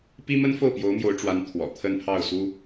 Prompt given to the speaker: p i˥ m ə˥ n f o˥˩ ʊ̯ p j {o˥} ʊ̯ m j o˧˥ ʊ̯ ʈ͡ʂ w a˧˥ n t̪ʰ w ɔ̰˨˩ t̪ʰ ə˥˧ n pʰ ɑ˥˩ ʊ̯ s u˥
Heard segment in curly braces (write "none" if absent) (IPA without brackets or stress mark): o˧˥